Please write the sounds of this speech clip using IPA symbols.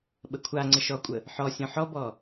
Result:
ɓəkʷʰa ŋ͡ǀəʃɔkʷʼə | ħɔ sʲɔ̃ħɔbɔ

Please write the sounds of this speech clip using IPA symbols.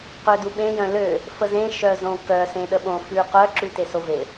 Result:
qøduɓẽ jœ̃lø | fəzẽ ʃœzõkœ sẽɗəɓõ fʉqœ ǁʉtesove

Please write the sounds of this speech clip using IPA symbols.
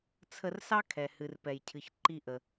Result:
t͡sʰə˧rsɑ˥kʰɛ˩ hɨ˩rpɛ˩jcʰɨ˩ç ǃi˧ʔə˩

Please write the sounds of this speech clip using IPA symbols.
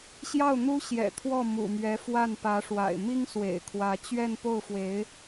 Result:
ɕjɑ˥˩ʊ̯ n̪u˥ɕjɛ̰˨˩ t̪ʰwɔ˥˩ mṵ˨˩mɥɛ˧˥fwa˥˩n pä˧˥ʂwa̰˨˩ɪ̯ mi˥ŋ swḛ˨˩ɪ̯kʰwä˧˥ t͡ɕɥɛ˥˧n po˥˩ʊ̯fwe˧˥ɪ̯

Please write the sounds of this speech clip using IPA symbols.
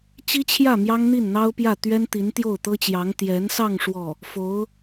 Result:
t͡ɕi˥t͡ɕʰjä˥˩ mjɑ˥ŋn̪i˥˩nn̪ɑ˥ʊ̯pjä˥˩ t̪ɥɛ˥nt̪i˧˥n t̪jo˥˩ʊ̯t̪ɤ˥t͡ɕjɑ˧˥ŋ t̪jɛ˧˥nsɑ˥˧ŋ ʂwɔ˥˩ | fo˧˥ʊ̯

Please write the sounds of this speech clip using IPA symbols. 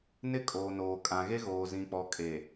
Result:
nɪ˦ kʼoː˨noː˨ kʼã˨ɣe˦ ɣoː˨zĩ˨k͡pɔ˨ kʼe˨

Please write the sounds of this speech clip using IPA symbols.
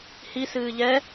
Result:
hisɨː ʎɛ

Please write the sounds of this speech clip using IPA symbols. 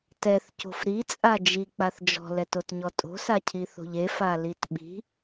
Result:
tɛθco̤f ɾit͡sʼa d͡ʒik͡paθ d͡ʒɔ̤lɛtotɲɔ tʼo̤sacʰiθo̤ʎ efalit ɓi̤

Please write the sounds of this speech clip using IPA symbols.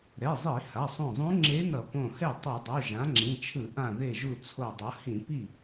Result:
ɾɛ˩˧˩zˤi˧˩˧ ha˩˧˩sˤõ˧˩zˤũ˧˥ ŋ͡ǁe˧˥nʌ˧˩˧ põ˧˩hɛ˥˩ tˤi˧˩˧dˤo˩˧˩ ʒã˩˥ŋ͡ǁĩ˩˧˩t͡ʃʰɯ˧˩˧ ʔã˧˩ ðe˧˩ʒu˧˩ t͡sʰo˧˩dˤʌ˩˥ hĩ˧˩˧ pi˧˩

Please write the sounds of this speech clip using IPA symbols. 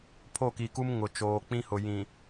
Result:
pʰo˦˨ki˨ku˦m ŋʊ˨ t͡ʃoː˨k͡pĩ˦hʊ˨ jĩ˨

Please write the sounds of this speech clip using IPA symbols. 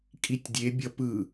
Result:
kʼitʲdʲe bʲʌpɯ

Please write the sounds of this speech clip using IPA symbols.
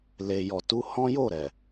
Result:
le˨jɔ˨tu˧ hɔ̃˦jo˦˨ ɾɛ˨

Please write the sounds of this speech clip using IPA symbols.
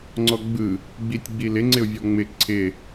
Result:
ŋ͡ǀɔɡ͡bɯ | ɡ͡bitʲɡ͡bilɪ ŋ͡ǀɪʊ̯vʲɔŋ͡mɪ ǀʰɪ

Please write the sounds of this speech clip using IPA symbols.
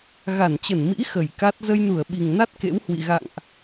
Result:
ɣa˧˩nt͡ɕə˧˩nmḭ˧˥ xə˧˩jka˦˥t̚ zə˧jnu˧˩ə̯ɓi˨˩ŋna˦˥t̚ kḛ˧˥whwḭ˧˨ ɣa̰˧˨ŋʔ

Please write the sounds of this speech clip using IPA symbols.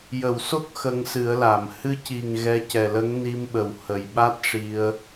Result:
jə˨˩˨wso˦˥k̚ xə˧ŋsɨ˨˩˦ə̯la˨˩˨m hɨ˧ci˨˩ŋ ɣɛ˧cɛ˨˩lə˧˥ŋ ni˧mɓə˨˩w hə˨˩jɓa˦˥t̚ ʂi˧ə̯

